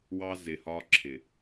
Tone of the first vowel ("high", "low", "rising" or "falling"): high